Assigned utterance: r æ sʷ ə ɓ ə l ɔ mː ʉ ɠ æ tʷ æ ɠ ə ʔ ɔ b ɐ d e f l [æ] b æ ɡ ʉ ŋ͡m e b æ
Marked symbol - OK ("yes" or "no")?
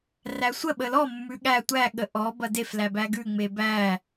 yes